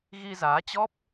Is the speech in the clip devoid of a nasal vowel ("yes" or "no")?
yes